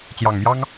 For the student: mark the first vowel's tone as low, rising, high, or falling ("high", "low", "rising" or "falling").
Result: low